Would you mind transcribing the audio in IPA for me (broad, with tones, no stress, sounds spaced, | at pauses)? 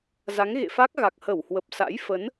z a˨˦ ŋ ɣ ḛ˧˨ f a˦˥ k̚ ɣ a˨˩ k̚ h ə˧˩ w h w ə˨˩ p̚ s a̰˧˥ j f ə˨˦ n